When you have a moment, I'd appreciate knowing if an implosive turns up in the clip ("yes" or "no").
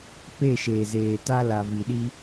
yes